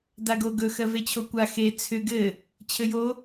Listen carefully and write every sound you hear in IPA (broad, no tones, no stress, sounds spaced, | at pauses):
d a ɡ o ɡ ɵ x ɜ v e t͡ɕʰ o kʷ a x e t͡sʰ ʏ ɡ ɘ | t͡ɕʰ ɘ j o